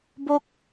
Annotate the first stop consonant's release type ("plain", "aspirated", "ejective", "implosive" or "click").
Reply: plain